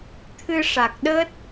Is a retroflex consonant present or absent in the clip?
present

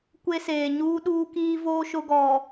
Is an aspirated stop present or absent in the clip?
absent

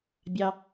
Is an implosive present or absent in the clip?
absent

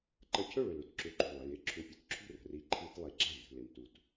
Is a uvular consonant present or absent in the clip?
absent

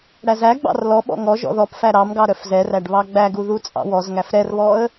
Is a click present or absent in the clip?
absent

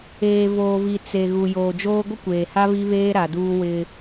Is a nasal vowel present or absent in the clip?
absent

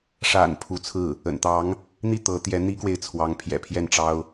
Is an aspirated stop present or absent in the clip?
present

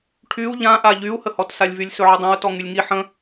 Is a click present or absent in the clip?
absent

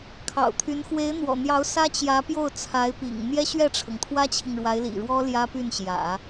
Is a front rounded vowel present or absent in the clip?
present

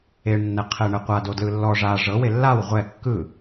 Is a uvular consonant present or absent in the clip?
present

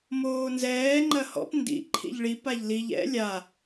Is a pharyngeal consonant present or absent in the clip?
absent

